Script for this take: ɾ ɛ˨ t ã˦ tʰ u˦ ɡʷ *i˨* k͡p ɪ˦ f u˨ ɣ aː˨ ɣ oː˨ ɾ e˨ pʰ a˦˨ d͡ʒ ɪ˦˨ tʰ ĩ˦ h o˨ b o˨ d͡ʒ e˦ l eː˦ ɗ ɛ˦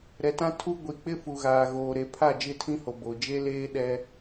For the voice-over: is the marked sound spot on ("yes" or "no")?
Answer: yes